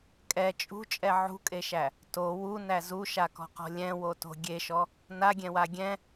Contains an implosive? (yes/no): no